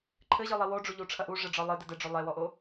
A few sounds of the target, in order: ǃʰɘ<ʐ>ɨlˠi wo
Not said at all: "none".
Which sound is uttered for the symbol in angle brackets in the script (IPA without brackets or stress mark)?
ʑ